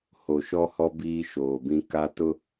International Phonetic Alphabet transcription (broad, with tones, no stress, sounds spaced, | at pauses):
h o˨ ʃ ɔ˦ h ɔ˦ b iː˦ ʃ oː˨ b ĩ˦ k a˦ t ʊ˦